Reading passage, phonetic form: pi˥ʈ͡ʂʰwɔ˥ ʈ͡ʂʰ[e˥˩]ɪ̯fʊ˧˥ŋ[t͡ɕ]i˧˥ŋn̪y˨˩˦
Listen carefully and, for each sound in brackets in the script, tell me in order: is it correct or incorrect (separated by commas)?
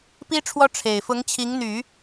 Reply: incorrect, incorrect